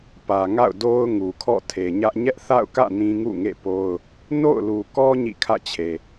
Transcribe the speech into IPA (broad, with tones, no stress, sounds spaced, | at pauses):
p ä˨ ŋ a̰˦˨ ʊ̯ d o˦ ʊ̯ ŋ u˨ kʰ ɔ̰˦˨ tʰ e˨ ɲ ä˦ ʔ ɲ ɛ˦ ʔ θ a̰˦˨ ʊ̯ k ä̰˦˨ n ĩ˦ ŋ ṵ˦˨ ŋ ḛ˦˨ p o˦ ʊ̯ | n o̰˦˨ ʊ̯ l u˨ k ɔ˦ ɲ ḭ˦˨ kʰ ä̰˦˨ t͡ɕʰ e˨